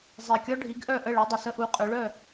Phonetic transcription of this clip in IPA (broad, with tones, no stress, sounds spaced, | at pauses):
zˤ i˨˩ kʲ ɔ˦˥ ɖʱ i˨˦ ɡ ʔ œ˥˨ ʔ ə˥˨ ɭ ɛ˨˦ dˤ ə˨˩ s ə˦˥ ʔ u˨˦ qʼ ø˨˦ ɭ œ˥˨